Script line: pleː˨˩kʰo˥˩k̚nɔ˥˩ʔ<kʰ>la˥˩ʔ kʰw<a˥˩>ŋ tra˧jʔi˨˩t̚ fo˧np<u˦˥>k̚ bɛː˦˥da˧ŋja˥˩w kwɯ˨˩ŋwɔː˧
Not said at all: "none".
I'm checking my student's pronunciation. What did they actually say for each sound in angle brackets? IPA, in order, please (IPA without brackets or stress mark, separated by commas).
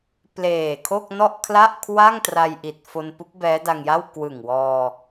kʰ, a˥˩, u˦˥